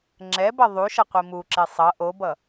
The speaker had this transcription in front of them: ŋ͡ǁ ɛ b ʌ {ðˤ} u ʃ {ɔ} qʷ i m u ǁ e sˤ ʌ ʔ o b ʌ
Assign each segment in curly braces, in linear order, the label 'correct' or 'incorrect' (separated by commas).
correct, incorrect